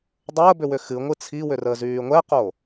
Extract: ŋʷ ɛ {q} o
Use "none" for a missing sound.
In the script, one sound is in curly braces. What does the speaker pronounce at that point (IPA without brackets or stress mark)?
q